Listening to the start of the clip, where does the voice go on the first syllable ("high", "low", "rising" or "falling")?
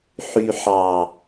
low